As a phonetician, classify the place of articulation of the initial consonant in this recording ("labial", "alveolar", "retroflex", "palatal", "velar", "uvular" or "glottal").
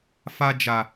labial